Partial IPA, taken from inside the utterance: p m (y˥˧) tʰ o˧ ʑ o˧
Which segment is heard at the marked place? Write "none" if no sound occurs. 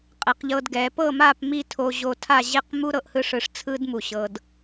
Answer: i˥˧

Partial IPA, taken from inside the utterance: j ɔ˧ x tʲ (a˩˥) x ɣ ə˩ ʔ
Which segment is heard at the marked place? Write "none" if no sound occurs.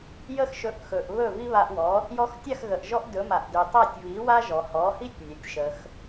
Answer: a˥˩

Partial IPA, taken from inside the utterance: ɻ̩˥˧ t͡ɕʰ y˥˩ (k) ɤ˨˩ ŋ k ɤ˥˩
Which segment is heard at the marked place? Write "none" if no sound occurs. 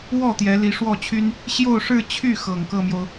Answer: x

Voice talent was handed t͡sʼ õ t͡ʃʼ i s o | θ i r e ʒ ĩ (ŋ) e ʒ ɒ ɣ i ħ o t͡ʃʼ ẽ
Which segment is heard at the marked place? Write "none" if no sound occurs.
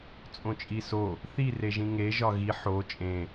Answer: ŋ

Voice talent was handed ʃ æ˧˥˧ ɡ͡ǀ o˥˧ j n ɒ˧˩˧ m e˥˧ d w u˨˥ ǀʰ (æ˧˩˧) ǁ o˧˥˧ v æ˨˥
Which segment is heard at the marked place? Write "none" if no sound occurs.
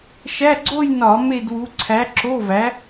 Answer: æ˨˥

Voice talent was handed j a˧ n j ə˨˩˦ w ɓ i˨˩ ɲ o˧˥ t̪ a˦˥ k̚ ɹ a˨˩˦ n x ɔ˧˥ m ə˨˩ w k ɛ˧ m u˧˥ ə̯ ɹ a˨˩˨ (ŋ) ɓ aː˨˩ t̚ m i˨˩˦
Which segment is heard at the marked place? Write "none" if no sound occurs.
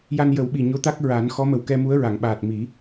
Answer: ŋ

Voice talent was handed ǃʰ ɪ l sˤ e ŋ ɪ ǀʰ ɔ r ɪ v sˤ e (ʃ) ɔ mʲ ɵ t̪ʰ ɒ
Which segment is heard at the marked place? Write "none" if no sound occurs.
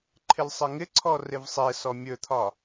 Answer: s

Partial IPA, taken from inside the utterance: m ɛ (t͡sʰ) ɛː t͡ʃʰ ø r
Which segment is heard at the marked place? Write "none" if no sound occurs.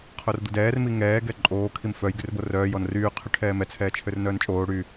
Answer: t͡sʰ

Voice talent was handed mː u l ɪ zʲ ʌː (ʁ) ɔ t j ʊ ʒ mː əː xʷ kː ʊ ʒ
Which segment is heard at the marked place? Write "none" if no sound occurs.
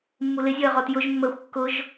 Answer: ʁ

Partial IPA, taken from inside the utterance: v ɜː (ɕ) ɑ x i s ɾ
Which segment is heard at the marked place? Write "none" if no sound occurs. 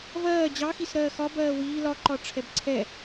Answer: d͡ʑ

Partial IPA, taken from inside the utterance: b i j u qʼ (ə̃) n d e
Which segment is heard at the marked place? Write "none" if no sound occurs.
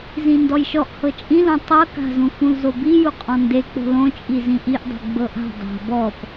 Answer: ɔ̃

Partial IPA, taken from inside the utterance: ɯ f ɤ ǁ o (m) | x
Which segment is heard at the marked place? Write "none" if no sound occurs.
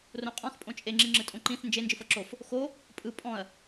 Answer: f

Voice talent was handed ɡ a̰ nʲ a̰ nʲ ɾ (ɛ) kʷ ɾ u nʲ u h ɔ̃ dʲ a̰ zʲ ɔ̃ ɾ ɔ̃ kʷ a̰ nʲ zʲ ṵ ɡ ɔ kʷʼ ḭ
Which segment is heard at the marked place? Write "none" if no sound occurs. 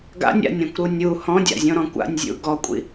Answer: ɛ̃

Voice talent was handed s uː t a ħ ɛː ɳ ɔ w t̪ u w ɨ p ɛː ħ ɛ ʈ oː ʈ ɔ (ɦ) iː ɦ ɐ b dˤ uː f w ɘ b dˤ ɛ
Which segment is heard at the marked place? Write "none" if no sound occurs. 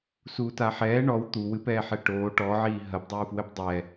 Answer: ʕ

